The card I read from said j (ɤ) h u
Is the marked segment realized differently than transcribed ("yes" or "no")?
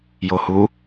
yes